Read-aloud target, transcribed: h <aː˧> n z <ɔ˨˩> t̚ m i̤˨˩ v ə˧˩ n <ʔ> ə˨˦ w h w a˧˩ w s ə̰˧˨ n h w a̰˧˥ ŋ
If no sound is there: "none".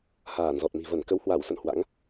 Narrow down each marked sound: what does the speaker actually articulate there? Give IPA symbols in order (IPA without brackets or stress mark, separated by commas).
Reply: aː˧˩, ɔ˨˩, k